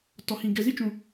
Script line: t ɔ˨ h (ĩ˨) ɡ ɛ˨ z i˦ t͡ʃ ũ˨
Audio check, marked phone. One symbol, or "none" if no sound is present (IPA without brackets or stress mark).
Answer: ĩ˨